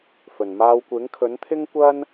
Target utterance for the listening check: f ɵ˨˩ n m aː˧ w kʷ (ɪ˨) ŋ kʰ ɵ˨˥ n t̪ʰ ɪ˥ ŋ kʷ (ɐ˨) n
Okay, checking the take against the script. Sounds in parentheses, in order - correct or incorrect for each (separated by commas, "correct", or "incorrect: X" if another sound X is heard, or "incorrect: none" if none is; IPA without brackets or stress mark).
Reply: incorrect: ɪ˨˥, incorrect: ɐ˥